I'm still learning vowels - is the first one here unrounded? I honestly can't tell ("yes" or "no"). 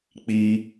yes